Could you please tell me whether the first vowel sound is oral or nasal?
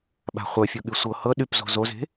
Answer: oral